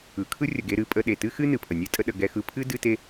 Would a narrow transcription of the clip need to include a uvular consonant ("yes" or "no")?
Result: no